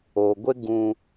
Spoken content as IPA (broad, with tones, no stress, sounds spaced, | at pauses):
o˨ ɡʷ ɪ˦ ɡ ũ˦